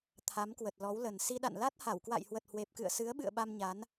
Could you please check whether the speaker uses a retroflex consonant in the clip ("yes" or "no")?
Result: no